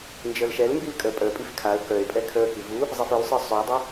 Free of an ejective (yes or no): no